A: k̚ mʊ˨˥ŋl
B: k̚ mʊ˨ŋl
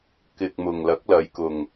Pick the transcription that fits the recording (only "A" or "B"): B